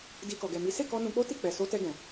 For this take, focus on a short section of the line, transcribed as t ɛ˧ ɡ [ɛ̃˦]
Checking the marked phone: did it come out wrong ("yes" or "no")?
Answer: yes